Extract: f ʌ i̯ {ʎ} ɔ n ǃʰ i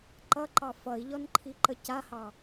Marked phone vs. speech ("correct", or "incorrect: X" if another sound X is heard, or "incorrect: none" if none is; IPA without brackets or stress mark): correct